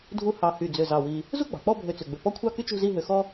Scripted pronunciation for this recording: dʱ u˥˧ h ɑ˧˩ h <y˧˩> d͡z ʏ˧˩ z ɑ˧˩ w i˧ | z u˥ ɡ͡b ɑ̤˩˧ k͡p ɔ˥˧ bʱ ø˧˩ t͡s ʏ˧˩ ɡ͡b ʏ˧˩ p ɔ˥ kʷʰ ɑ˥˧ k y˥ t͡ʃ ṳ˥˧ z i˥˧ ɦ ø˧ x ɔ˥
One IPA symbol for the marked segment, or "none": y˧˩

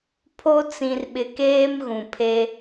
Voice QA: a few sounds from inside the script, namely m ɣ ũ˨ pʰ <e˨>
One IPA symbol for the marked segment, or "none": e˦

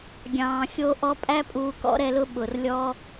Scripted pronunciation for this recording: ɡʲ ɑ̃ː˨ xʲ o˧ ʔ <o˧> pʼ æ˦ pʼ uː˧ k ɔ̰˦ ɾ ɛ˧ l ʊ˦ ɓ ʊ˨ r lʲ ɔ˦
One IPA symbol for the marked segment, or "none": ɔ˧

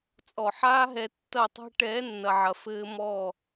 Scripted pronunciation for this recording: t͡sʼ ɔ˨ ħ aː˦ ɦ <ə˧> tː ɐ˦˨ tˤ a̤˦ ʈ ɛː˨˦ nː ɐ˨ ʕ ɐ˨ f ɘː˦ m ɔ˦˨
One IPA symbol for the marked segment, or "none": ɛ˧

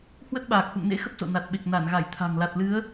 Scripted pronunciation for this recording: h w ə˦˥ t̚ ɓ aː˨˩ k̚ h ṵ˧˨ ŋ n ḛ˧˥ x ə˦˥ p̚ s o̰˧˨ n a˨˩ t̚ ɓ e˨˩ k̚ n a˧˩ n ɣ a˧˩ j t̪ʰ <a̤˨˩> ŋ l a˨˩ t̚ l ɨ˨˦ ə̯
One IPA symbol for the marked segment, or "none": a̤˨˩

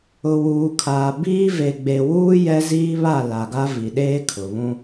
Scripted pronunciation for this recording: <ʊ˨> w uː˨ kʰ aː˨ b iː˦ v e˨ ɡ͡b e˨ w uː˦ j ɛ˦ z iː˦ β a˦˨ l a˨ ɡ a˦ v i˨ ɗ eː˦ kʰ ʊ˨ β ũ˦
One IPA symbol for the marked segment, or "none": ʊ˨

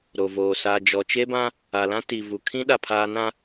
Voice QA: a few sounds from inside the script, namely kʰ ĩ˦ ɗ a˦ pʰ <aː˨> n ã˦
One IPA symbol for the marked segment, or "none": aː˦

